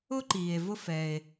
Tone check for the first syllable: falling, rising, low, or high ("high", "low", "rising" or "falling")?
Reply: high